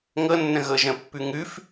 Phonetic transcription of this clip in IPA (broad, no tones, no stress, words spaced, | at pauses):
ŋɤnːə̃ ɣɤʒə̃pːʉ ŋʉf